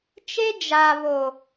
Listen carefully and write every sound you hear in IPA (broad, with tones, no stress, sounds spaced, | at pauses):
t͡ʃ e˦ d͡ʒ a˨ β o˨